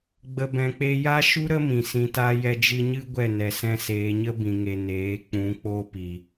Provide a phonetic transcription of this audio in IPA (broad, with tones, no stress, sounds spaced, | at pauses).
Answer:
ɡ͡b ə˨ b ɛ̃˨ k͡p e˧ j a˦ ʃ u˦ ɾ ə˦ m ĩ˨ s ĩ˧ t a˦ j ɛ˧ d͡ʒ ɨ˧ ɲ ɨ˦ ɡʷ ɛ˦˨ n ɛ˨ s ɛ̃˧ s eː˨ ɲ ə˦ b ĩ˨ ŋ e˨ n eː˨˦ k͡p ũ˨˦ k͡p o˦ p i˨